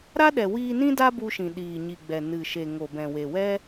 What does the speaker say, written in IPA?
ɾ a˦ ɗ ɛ˨ w iː˧ n ĩ˦ d a˦ b u˧ ʃ ĩ˨ ɗ iː˨ ɲ i˨ ɡ͡b ɛ˨ n ɨ˨ ʃ e˨ ŋ o˨ b ɛ̃˨ w e˨ w ɛ˦

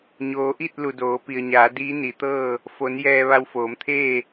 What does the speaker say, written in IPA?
ɲ oː˩˧ ʔ i˥˨ t̚ l u˩ d oː˩˧ p i˩ ə̯ ɲ aː˩˧ d iː˧˥ n i˩˧ t̪ ɤː˥˨ | f o˩˧ n j ɛː˧ ʋ a˧ w f oː˩˧ m t̪ʰ eː˥˨

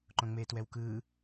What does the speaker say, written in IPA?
ǃ õ ŋ͡m eː t w ɛ w k ɯː

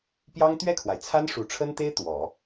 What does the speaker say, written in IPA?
p j ɑ˥ ŋ t̪ ɥ ɛ˥˩ kʰ w a˩ ɪ̯ t͡sʰ a˥ n ʂ u˨˩ ʈ͡ʂʰ ə˥ n t̪ e˥ ɪ̯ t̪ w ɔ˨˩˦

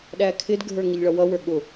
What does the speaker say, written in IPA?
ɗ æ kʰ ɪ d ɡʱ ə˞ ŋ ɪ ʎ ɭ ʌ w ʌ w ə˞ ɠ ʊ

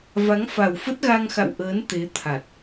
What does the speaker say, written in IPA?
v a˨˦ ŋ f a˨˩ w f ə˦˥ t̚ ɣ a˧ ŋ x a̰˧˨ w ʔ əː˨˦ n t̪ e˨˦ t̪ʰ a˨˩ t̚

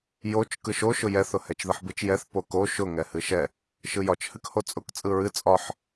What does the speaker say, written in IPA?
j o t͡ʃ k ɯ ʃ o ʃ ʊ j ɛ θ ʊ h ɛ t͡ʃ ð ɯ ħ b ɯ t͡ʃ j ɛ θ p o k o ʃ ʊ ŋ ɛ h ɨ ʃ ɛ | ʃ ɯ j ɒ t͡ʃ h ɨ k h o t͡sʼ ʊ k t͡sʼ ɯ ɹ ɨ t͡sʼ ɒ ħ

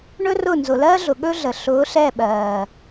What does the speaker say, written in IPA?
ɳ ɵ˦ r ʊ˦˨ n z ʊ˨ l ɜː˦ ɮ ʊ˨ ɠ ɵ˦ ɮ ə˨ ɬ ʊː˨˦ ɬ ɛ˦˨ ɓ ɜː˨

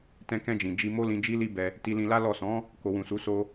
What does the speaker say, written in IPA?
t ɛ̃˧ k ɛ̃˧ d͡ʒ ĩ˨ d͡ʒ i˧ m o˦ l ĩ˧ d͡ʒ i˦ l i˦ b ɛ˧ | t i˧ l ĩ˧ l a˦ l ɔ˦˨ s ɔ̃˨˦ | k o˨ w ũ˨ s u˨˦ s o˦

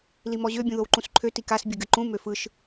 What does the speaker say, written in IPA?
l i m ɔ ʑ ø bʲ ũ ð o w ǃ ũ s ǃʰ ø t i k a s bʲ ɨ ɡ ɨ ǃ ũ m ø f ɯ ʃ

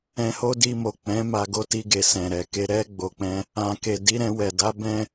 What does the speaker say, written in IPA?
ɛ̃˧ h o˦ d i˧ m o˨ k͡p ɛ̃˨˦ m a˧ ɡ o˦ t i˧ ɡ e˨ s ɛ̃˨ ɾ ɛ˨ k e˧ ɾ ɛ˧ ɡ͡b o˨ k͡p ɛ̃˧ | ã˨ k e˨ d i˨˦ ɾ ɛ̃˧ w ɛ˨ d a˨˦ b ɛ̃˦

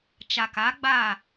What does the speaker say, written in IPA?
t͡ʃ a˨ k a˨˦ ɡ͡b a˦˨

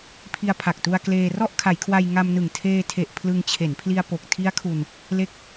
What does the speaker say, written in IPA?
pʰ i˧ a̯ pʰ a˨˩ k̚ t u˧ a̯ k l eː˧ r ɔ˥˩ ʔ kʰ a˩˦ j kʰ w a˧ j ŋ a˧ m n ɯ˨˩ ŋ tʰ eː˧ tʰ e˨˩ ʔ pʰ l ɯ˧ ŋ t͡ɕʰ e˩˦ n pʰ l i˧ a̯ p o˨˩ k̚ tʰ i˦˥ a̯ kʰ u˧ n | l e˦˥ k̚

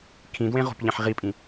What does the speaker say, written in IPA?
kʰ ĩ d w ẽ ʁ o̤ p ʎ ẽ ħ ʁ i pʼ ĩ

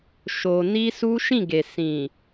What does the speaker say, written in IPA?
ʃ o˧ n i˦ s u˦ ʃ ĩ˦˨ ɡ e˨ s ĩ˨

